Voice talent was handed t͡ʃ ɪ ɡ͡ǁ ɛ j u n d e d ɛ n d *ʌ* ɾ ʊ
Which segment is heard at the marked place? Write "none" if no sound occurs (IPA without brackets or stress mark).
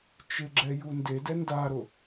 a